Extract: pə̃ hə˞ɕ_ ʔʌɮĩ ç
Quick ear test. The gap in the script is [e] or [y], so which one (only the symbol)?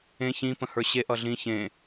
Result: e